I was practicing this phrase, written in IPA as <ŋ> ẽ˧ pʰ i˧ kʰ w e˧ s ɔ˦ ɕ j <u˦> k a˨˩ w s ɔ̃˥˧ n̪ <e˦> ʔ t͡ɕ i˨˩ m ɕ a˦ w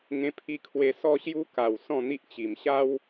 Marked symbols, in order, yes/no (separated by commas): yes, yes, no